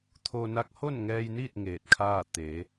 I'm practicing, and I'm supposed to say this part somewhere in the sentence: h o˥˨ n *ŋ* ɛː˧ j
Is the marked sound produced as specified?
yes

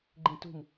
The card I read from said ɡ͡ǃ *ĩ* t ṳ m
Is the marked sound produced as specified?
yes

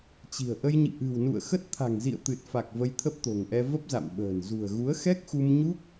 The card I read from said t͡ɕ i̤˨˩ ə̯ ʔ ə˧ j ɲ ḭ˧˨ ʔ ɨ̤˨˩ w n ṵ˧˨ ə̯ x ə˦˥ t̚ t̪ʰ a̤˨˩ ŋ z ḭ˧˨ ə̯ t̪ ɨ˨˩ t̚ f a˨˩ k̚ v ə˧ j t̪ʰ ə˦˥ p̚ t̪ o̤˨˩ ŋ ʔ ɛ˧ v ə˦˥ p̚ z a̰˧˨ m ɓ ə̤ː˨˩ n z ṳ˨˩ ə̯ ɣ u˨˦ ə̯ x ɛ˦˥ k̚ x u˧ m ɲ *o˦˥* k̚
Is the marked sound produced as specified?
no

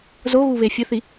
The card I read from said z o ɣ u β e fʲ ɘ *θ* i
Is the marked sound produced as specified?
yes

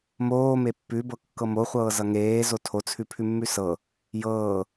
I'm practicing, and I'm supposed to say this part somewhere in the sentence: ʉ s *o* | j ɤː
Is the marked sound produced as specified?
no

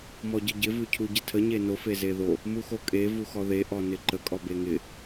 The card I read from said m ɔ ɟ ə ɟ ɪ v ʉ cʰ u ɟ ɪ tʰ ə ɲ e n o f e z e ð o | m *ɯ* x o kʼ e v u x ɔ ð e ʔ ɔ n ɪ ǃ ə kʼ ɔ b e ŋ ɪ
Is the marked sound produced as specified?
no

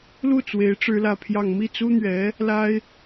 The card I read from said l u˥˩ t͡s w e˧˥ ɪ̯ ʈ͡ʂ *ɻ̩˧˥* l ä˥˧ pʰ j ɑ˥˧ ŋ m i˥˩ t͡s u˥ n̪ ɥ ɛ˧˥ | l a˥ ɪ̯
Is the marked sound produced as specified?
no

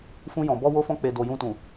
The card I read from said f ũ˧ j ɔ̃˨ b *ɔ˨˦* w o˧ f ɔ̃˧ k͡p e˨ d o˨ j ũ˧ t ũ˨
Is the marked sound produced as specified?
no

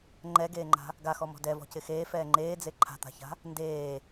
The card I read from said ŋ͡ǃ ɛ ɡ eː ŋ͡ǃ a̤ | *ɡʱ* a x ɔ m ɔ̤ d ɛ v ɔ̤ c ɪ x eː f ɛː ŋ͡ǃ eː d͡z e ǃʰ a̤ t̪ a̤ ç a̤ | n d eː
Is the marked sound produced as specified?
no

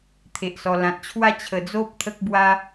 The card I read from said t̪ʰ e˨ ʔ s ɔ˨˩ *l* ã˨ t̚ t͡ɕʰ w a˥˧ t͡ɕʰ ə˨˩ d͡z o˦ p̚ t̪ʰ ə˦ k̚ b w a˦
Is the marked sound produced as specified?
yes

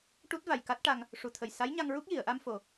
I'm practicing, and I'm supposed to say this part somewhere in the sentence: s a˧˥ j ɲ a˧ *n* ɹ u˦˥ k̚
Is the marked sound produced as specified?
no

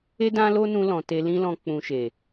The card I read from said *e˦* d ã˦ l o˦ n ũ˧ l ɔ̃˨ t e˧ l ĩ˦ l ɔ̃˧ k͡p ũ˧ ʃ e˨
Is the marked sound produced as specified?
yes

